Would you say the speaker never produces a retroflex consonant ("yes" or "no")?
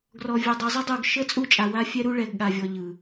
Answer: no